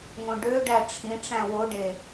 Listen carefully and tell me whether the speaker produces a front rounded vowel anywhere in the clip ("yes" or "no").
yes